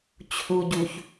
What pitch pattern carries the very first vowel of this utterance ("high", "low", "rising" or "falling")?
low